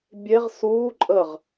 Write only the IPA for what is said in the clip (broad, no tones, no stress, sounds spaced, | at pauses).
bʲ e ʁ s uː ǃʼ ə ʁ